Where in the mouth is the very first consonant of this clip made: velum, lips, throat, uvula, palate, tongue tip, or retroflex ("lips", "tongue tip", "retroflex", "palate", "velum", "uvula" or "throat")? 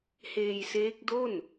throat